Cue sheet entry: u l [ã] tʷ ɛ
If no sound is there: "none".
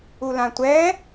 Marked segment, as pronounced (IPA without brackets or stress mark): ã